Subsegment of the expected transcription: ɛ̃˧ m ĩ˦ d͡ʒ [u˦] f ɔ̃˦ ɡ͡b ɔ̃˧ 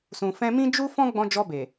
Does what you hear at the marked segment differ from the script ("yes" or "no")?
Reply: no